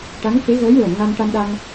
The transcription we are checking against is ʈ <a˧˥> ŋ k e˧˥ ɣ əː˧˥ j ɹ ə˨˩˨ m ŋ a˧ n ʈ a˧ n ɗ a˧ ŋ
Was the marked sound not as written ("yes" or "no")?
no